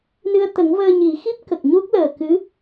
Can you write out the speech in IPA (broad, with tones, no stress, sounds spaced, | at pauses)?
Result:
n ɨ˧ ə̯ t̪ ə˨˩˦ ŋ v əː˧ ɲ i˨˩˦ x i˦˥ p̚ k ə˨˩ k̚ ɲ u˦˥ k̚ l əː˨˩ k ɨ˧˥